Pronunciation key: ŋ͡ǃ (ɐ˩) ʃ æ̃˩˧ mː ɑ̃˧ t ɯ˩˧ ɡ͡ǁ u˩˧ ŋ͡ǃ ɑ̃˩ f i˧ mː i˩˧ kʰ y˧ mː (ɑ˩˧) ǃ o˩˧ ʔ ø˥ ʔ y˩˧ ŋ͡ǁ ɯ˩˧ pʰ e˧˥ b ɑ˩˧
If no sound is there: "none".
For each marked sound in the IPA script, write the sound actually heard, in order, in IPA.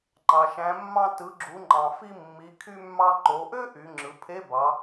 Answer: ɑ˩, ɑ˧

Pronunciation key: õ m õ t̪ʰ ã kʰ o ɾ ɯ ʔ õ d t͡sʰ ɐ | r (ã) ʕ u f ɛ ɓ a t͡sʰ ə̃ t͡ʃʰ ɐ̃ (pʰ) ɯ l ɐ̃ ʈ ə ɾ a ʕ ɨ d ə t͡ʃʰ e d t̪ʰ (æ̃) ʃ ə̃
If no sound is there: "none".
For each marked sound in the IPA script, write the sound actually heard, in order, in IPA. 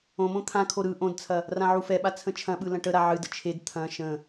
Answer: ã, ɓ, ɐ̃

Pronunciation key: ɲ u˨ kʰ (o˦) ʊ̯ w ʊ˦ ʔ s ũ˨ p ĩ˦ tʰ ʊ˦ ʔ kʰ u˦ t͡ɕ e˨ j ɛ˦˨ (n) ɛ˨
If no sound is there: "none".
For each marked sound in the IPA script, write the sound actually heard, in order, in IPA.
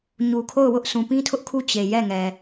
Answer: o˦˨, ŋ

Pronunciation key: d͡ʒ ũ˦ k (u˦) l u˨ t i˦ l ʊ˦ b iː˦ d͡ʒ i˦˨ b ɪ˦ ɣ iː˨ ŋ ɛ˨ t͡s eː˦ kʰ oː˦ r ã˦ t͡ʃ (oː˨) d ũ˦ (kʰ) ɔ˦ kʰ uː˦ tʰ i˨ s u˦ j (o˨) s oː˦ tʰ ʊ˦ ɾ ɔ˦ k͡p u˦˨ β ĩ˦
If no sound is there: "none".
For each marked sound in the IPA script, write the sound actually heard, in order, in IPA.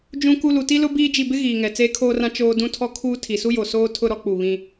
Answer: u˦, oː˦, tʰ, o˨

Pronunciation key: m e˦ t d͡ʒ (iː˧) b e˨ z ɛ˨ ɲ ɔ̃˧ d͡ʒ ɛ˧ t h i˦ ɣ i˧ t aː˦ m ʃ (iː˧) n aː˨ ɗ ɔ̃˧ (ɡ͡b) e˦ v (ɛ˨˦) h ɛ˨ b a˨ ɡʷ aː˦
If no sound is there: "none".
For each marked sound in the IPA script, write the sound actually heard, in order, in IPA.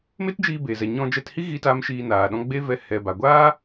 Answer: iː˧, iː˧, ɡ͡b, ɛ˧

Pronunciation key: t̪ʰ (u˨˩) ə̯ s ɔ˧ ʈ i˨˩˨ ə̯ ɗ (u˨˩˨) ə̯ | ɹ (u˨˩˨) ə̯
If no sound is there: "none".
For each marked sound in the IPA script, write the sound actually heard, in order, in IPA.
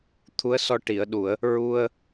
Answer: u˧˥, u˨˩˨, u˧

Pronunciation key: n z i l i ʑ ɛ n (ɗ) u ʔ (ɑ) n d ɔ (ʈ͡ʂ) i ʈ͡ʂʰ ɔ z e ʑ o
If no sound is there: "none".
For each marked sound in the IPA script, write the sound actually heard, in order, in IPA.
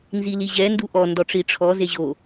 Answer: d, ɔ, ʈ͡ʂ

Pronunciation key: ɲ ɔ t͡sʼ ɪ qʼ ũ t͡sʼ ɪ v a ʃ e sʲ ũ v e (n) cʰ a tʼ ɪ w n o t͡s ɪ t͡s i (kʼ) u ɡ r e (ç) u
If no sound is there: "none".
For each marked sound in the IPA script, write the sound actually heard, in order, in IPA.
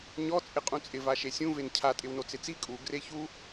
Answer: n, kʼ, ç

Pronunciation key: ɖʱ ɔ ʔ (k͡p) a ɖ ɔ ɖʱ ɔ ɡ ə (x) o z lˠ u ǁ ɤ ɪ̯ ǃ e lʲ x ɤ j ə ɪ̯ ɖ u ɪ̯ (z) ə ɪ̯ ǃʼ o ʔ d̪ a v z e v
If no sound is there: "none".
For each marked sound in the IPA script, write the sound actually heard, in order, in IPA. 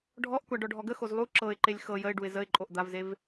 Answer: kʷ, x, z

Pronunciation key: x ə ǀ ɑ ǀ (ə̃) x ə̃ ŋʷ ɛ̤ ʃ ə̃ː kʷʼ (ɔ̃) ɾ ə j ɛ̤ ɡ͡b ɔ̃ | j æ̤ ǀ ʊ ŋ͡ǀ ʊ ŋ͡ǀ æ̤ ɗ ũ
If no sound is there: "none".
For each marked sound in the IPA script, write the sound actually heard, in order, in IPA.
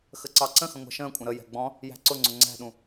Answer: ə̃, ə̃

